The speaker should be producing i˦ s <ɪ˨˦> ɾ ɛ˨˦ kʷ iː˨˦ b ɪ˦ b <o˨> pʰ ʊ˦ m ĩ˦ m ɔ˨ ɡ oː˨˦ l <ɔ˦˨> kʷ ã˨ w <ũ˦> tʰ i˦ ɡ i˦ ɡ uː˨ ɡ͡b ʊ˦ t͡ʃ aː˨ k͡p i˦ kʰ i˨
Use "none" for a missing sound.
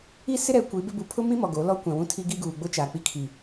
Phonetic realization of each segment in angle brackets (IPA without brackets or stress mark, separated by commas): ɪ˦, u˨, ɔ˦, ũ˦